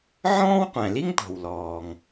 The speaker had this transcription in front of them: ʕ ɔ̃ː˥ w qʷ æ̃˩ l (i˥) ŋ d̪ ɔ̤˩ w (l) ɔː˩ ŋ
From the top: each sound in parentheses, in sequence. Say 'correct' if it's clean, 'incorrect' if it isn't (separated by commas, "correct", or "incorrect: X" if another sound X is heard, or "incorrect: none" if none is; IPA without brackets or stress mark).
correct, correct